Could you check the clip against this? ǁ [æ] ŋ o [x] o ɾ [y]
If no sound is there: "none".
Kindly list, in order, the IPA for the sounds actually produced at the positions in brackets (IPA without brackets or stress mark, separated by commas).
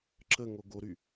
ə, ɡ, y